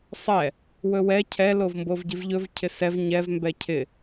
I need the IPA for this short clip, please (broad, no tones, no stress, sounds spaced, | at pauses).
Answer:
sˤ ɛ | w ɵ w ɛ cʰ ɛ l o v m b o v ɟ i v ʎ ɵ v cʰ ɪ s ɛ v ɲ ɛ v m b ɛ cʰ ɪ